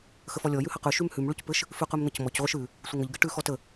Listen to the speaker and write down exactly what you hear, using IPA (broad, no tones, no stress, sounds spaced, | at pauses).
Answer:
x ə f ɔ lʲ ɔ j ʉ h ɐ q ʉ ʃ ʉ m h ʉ m ɭ ʉ c p ɘ ʃ | f ʉ q ʉ m n̪ ə c m ɔ c ʁʷ ɘ ʃ ʉ | sʷ ə ŋ ə ʎ ɡ ɘ ʈ ʉ x ɔ t ə